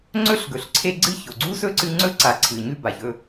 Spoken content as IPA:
ŋ͡ǀ ɵ˥ ɬ ɡ ɵ˩ ɬ ǀʰ e˦ ɡ͡ǀ ɨ˥ ç o˩ ɡ͡ǀ u˥ s ɵ˥ ǀ ɨ˦ ŋ͡ǀ ɵ˥ ǀ a˨ ǀʰ ɨ˨ ɲ ʉ˥ b a˨ ç ɵ˦

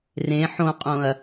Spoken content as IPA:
r ẽ ħ õ qʼ õ ɐ̯

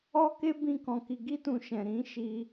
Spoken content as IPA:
ɔ˦ k e˦ b ĩ˦ k ɔ̃˧ k i˧ ɡ i˦ t ũ˧ ʃ ɛ̃˨ ɾ ĩ˨˦ ʃ i˧

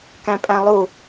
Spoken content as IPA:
k æ̃ pʼ æ̃ lˠ u

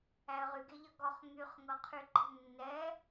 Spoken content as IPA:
æ ə̯ ʁ y ɡ e ʎ ʌ ɡ ɔ χ ŋ y χ ŋ ɤ qʰ y ǃ ə̤ nː ɛ

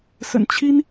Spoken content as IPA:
s ə̰˨˩ n t͡ɕʰ i˥ n

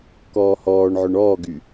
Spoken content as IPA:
k ɔː h ɔː ɳ ʕ ʊ ɳ ɔː ɡ y

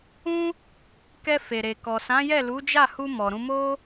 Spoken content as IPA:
ũ˦ | k ɛ˧ f e˨ ɾ e˨ k ɔ˨ s ã˨˦ j ɛ˦˨ l u˨˦ d͡ʒ a˦˨ h u˧ m ɔ˨ ɾ ũ˧ m o˦

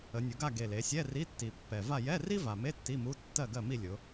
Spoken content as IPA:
ə˩˧ nʲ ʊ˩˧ ɡ a˥˨ ɡ e˨˩ l e˩˧ sʲ ɛ˧˥˧ r i˧˥˧ tː i˨˩ pː ɛ˨˩ v a˥˨ j ɛ˧˥˧ r i˥ v a˨˩ m e˧˥˧ tː i˧˥˧ m u˧˥˧ tː ɜ˥˨ ɡ ɜ˥˨ m i˥˨ lʲ ʊ˩˧

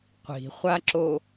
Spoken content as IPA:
qʷ i̤ χʷ a ǁ o

